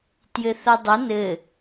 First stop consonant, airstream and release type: plain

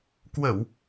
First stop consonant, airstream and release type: plain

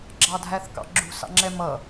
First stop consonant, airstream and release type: click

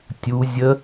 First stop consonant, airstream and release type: plain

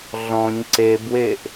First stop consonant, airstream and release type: click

